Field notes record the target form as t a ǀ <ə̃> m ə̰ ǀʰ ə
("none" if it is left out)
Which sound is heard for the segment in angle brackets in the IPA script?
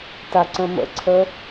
ə̃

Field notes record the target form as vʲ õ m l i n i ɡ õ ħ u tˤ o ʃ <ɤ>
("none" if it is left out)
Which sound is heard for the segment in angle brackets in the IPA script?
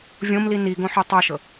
ɤ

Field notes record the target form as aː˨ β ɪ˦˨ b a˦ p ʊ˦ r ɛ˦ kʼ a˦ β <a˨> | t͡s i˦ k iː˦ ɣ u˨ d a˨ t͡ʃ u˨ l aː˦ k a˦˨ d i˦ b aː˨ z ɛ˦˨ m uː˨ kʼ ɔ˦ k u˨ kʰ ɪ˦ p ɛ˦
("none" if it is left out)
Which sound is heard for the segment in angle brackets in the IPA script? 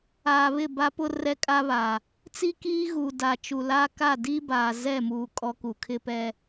a˨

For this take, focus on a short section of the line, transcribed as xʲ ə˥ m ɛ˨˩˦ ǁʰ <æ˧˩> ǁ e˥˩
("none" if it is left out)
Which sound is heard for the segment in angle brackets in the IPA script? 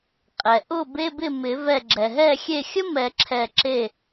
ɛ˧˩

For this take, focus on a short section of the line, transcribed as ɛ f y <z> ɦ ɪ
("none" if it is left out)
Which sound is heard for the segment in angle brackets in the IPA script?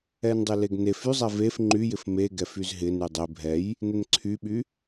z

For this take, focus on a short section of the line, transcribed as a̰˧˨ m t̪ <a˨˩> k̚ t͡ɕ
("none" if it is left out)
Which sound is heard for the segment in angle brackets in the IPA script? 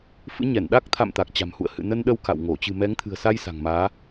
a˨˩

